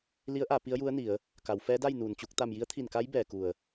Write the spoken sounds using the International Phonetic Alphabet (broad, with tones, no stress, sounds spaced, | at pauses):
l i˧˥ ə̯ ʔ a˩˧ p i˧˥ ə̯ j u˧˥ ə̯ n i˩˧ ə̯ | k a˩˧ w f ɛː˧˥ d a˥˨ j n uː˩ n t͡ɕ u˧ k̚ t̪ a˧˩ m j i˧˥ ə̯ t̪ʰ i˧˩ n k a˧˥ j b ɛː˩ k u˧˩ ə̯